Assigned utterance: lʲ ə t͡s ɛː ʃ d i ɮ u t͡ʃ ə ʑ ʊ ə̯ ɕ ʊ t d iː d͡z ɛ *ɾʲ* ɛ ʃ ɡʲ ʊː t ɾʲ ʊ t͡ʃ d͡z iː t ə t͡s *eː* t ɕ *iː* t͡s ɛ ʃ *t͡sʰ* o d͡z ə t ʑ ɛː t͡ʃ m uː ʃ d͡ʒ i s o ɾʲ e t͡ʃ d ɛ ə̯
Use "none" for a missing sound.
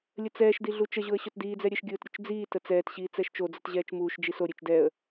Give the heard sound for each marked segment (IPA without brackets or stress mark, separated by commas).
ɾʲ, ɛː, iː, t͡ʃ